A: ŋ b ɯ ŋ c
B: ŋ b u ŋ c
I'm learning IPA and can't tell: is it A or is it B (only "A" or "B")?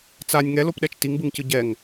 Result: A